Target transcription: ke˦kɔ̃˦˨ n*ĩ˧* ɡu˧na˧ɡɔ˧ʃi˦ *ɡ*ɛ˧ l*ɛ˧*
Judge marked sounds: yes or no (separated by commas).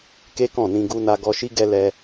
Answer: yes, yes, yes